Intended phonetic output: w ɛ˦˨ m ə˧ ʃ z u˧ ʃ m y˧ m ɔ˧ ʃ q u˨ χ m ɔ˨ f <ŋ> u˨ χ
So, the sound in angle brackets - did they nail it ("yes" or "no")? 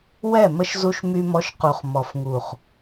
yes